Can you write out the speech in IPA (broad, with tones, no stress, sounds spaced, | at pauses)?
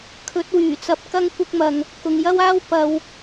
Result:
kʰ ɵ˨˥ t̚ w yː˨˩ t͡s ɐ˧ p̚ k ɐ˥ ŋ kʷ ɪ˥ k̚ m ɐ˧ ŋ | k ʊ˨ ŋ j ɐ˥ w aː˥ w p ɐ˥ w